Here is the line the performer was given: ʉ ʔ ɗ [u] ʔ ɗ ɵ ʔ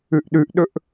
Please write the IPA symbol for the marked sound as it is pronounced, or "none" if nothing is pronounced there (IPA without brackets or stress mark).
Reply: ʉ